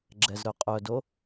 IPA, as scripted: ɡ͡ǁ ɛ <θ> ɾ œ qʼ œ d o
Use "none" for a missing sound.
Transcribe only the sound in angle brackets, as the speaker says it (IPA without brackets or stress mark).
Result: z